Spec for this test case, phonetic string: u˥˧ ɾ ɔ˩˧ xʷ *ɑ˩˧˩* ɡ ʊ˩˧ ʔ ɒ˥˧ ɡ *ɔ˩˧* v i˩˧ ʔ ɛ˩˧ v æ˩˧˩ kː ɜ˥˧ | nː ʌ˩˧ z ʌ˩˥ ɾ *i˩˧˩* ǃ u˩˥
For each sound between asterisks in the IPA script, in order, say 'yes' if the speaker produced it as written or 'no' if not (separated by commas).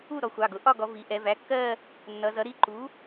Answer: yes, yes, yes